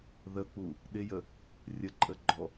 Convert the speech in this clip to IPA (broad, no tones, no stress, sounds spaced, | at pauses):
ð ə k͡p u | ɗ ɪ j ə | rʲ ə ǃʼ ə ɡ͡ǃ ɔ